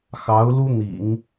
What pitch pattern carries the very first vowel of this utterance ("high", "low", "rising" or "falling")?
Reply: rising